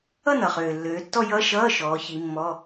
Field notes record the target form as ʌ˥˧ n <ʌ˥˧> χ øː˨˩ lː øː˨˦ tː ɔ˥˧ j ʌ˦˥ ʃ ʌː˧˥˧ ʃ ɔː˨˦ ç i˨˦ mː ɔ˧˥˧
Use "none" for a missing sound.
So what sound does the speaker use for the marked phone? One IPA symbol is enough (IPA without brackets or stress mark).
ʌ˨˩